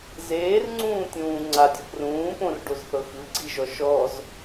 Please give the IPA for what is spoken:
z eː r ŋ͡ǀ ũː tʲ ũː ŋ͡ǀ a dʲ ɔ p r ũː p õ r ɖ o z θ ɤ x ɯ ɡ͡ǀ i ʒ ɔ ʃ ɔ z

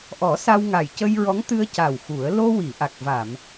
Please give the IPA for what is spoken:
ʔ ɔ˨˩˦ s a˧ w ŋ a˨˩ j c ə˧ j ɹ ɔ˧˥ ŋ t̪ ɨ˧ ə̯ c a˨˩ w x u˨˩˦ ə̯ l o˧ w i˨˩˨ ʔ a˨˩ k̚ v a˨˩˨ m

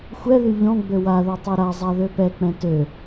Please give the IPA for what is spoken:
xʷ ɛ ð y ʎ ɔ̃ ɡ͡b ø w a ð ɛ tˤ e ɾ a zˤ a ð ø p ɛ k͡p ɛ̃ t ø

